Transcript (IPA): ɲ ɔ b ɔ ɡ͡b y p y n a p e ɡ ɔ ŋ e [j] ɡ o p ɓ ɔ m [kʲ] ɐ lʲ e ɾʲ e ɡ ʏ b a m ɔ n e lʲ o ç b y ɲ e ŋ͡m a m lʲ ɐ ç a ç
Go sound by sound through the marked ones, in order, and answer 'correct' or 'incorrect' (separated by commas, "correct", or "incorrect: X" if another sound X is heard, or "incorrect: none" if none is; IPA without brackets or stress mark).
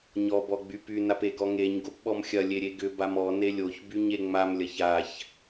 incorrect: ɲ, incorrect: xʲ